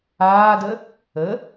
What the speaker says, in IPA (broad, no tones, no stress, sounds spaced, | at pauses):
aː d ə | ə